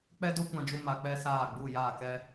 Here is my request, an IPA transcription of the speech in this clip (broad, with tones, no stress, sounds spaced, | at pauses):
k͡p ɛ˦ d o˦ kʷ ã˧ d͡ʒ u˧ m a˧ k͡p ɛ˦ s aː˦˨ ɡ͡b u˦˨ j aː˦˨ k ɛ˦